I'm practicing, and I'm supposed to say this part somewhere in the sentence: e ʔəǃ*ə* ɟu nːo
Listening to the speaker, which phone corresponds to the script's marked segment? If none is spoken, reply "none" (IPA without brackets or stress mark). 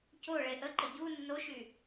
ə